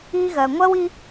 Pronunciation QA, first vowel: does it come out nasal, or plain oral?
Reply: oral